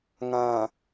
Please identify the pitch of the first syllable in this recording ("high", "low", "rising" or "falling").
low